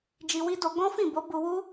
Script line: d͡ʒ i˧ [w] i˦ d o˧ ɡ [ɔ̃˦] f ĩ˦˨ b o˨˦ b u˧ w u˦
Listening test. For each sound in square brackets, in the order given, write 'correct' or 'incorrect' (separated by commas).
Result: correct, correct